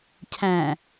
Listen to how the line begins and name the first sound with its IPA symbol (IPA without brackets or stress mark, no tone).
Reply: cʰ